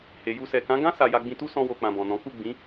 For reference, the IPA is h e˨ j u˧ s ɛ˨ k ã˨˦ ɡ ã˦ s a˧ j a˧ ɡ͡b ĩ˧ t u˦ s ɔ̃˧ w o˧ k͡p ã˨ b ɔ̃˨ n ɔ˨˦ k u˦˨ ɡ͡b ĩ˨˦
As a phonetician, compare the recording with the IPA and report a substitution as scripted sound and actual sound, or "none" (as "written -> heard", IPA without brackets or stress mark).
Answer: ɔ˨˦ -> ɔ̃˨˦